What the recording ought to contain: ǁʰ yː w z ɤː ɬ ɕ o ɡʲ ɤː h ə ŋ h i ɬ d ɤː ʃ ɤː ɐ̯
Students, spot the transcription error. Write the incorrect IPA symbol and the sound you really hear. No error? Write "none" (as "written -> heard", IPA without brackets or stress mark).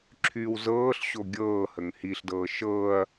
none